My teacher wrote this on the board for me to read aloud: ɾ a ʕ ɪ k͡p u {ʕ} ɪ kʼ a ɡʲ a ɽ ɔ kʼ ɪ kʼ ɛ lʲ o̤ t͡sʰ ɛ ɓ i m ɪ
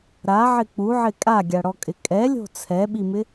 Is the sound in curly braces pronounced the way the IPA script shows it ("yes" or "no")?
yes